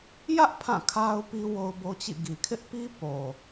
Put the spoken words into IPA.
j ä˦ ʔ pʰ ã˦˨ kʰ a˦ ʊ̯ p i˦ w o˦ ʊ̯ b o˦ t͡ɕ ḭ˦˨ ɡ i˨ kʰ ɪ˦ ʔ p i˦ p o˨

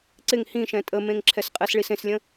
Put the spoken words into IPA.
ǀ ɪ ŋ h ĩ ʃ ɛ̃ tʼ ə m ẽ ŋ ǁʰ ɛ s qʼ ɛ s ɭ i s ẽ s lʲ ə̃

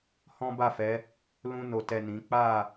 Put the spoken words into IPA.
h ɔ̃˦ b a˦˨ f ɛ˨˦ | l ũ˧ n o˨ t ɛ˨ n ĩ˨˦ k͡p a˦˨

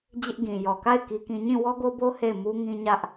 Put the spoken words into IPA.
d͡ʑ ɪ˦ ʔ ɡ ĩ˨ j ɔ˨ k a˦˨ ɪ̯ k i˦ k ĩ˦ ɲ ĩ˦˨ w ɔ˦ ɡ o˦ b o˦ h e˦˨ ɪ̯ m u˦ ŋ ĩ˦ ɲ ä˦ ʔ

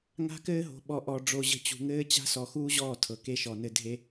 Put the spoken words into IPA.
ŋ a̤˦ k ɘː˦ ɦ o̤˨ ɓ ɔ˨ ʔ ɔ˨ ɖ͡ʐ o˨ ʑ ə̤˨ t͡ɕ ṳ˨ ŋ ɘː˦ t͡ɕ a̤˦ s ɔ˨ x uː˦ ʑ ɔː˦˨ tʰ ɤ˨ k e˦ ʃ ɔ˨ n ɘ˦ dʱ e˦

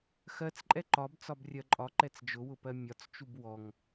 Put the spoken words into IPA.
x ɜ t͡s ǃʼ ɛ ǃ ɒ b t͡s ɒ b rʲ ɜ ǃʼ ɒ ǃ ɛ t͡s d͡ʒ ʊ w ʊ p ɜ mʲ ɒ t͡s t͡ʃ u b w ɔ ŋ

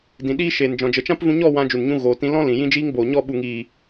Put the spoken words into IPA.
d ĩ˨ ɗ iː˦ ʃ eː˨ n d͡ʒ ɔ̃˨ d͡ʒ ə˨ t͡ʃ ã˦ p v ũ˧ ɲ ɔ˦˨ w ã˧ d͡ʒ u˨ n ɲ ũ˧ ɣ oː˨ t ĩ˧ l ɔ̃˦ l ĩ˨ j ĩ˦ d͡ʒ iː˦ ŋ b oː˨ ɲ ɔ˦˨ ɓ u˨ ŋ iː˨

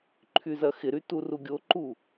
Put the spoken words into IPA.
ǃʰ y z ɐ x ɪ ɾ y t u r u ɡʲ o ǃ u

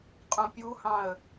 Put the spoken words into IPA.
qʼ ũ pʲ u h ɑ̃ ə̯

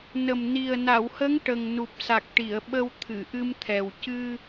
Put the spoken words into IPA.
n ə˨˩ m n i˨˩ ə̯ n a˨˩˨ w h ə˧˥ ŋ ʈ ə˨˩ ŋ n u˨˩ p̚ s a˨˩ k̚ ʈ i˨˩˨ ə̯ ɓ ə˧ w t̪ʰ ɨ˨˩˨ ʔ ɨ˧ m t̪ʰ ɛ˨˩ w c ɨ˧

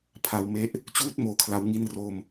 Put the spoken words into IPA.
pʰ a˧ w m e˦˥ ʔ | t͡ɕ uː˦˥ t̚ m oː˦˥ kʰ l a˦˥ w ŋ i˥˩ n r o˥˩ m

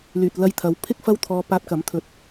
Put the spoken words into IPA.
l yː˨ t̚ l ɐ˧ j t̪ʰ ɐ˨˥ w pʰ ɪ˥ k̚ f ɐ˥ w t̪ʰ ɔː˧ p aː˧ t̚ k ɐ˨˥ m t̪ʰ ɵ˨˥ t̚

